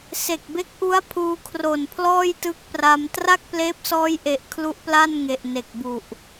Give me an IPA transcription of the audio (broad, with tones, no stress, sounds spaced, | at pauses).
s e˨˩ k̚ b e˦˥ k̚ ʔ u˦˥ a̯ pʰ uː˧ kʰ r o˨˩ n pʰ l ɔː˥˩ j t ɯ˦˥ k̚ p r a˧ m t r a˥˩ k̚ p l eː˦˥ p̚ s ɔː˦˥ j ʔ e˨˩ ʔ kʰ l u˦˥ ʔ p l a˥˩ n ŋ e˨˩ ʔ n e˨˩ k̚ b u˨˩ ʔ